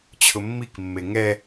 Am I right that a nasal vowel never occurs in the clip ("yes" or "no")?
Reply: yes